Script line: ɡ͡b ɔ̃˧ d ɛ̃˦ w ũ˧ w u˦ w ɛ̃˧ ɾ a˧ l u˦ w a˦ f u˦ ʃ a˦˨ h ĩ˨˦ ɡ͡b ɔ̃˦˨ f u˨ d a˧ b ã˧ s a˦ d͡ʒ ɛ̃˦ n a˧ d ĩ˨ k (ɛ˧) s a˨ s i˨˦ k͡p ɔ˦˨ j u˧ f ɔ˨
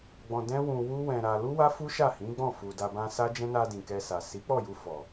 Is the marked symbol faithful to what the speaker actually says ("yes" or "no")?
yes